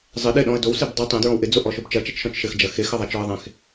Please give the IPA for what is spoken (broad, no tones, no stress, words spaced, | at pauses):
zˤɘ ɗɪɗɔ̃ə̯ dowseb dˤe tˤẽdɹɔ̃w ʔɪd͡zoʔɔʃob t͡ʃɐt͡ʃɐt͡ʃʃɔ̃t͡ʃ ʃɘxd͡ʒɐ xexɐðˤat͡ʃɔə̯ ðˤẽx